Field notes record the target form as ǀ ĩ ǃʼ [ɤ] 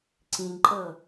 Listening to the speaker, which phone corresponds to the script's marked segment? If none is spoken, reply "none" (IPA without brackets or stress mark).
ɤ